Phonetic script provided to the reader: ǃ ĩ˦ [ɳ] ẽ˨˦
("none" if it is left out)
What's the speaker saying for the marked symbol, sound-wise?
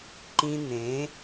n̪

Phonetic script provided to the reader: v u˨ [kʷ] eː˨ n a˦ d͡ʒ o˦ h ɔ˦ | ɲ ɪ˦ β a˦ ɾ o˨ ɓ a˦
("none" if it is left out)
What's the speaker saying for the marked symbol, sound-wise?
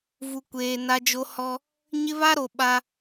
kʷ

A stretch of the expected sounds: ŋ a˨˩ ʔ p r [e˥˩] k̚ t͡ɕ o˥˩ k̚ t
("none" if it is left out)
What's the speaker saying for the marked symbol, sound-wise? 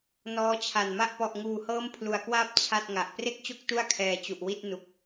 e˥˩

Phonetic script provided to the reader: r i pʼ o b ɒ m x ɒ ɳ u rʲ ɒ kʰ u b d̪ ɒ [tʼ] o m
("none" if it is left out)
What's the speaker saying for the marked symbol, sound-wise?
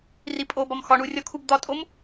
tʼ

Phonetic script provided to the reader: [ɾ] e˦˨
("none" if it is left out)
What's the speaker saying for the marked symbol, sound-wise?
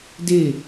d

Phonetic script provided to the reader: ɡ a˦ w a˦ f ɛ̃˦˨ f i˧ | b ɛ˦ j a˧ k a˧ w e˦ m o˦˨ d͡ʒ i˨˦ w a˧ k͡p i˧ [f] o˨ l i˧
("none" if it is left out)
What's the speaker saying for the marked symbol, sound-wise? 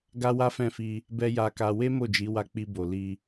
b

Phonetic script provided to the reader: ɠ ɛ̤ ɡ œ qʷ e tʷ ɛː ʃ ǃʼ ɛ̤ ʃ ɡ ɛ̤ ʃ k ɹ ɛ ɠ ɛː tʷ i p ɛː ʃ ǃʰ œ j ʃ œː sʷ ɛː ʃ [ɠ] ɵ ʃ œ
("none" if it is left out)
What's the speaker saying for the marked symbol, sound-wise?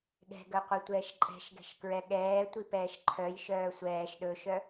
ɗ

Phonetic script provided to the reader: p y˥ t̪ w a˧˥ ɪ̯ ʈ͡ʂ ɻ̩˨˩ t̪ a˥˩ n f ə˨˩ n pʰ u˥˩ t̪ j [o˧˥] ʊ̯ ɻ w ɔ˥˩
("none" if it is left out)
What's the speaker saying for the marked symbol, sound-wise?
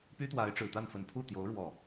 o˧˥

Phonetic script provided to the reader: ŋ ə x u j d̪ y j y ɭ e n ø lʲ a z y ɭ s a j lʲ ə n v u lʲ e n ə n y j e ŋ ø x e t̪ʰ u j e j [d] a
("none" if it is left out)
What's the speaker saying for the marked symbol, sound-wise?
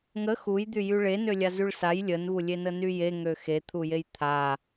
t̪ʰ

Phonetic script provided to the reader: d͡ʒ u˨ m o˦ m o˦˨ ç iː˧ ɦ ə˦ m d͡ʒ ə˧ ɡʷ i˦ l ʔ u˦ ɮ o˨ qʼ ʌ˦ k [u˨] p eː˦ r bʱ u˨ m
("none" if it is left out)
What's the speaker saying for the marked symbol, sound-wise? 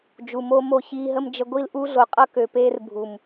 ø˨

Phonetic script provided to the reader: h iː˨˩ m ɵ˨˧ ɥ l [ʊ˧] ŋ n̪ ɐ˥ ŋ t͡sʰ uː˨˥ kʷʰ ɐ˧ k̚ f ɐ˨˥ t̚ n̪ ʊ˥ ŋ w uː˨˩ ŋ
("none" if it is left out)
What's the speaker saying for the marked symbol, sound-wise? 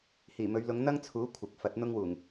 ʊ˨˧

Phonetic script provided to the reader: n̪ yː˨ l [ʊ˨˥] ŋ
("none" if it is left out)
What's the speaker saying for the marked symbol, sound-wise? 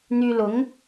ʊ˨˥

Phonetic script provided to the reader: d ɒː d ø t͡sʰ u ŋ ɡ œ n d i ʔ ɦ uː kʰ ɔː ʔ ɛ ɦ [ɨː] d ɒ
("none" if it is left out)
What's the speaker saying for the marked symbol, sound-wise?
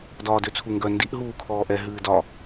ɨː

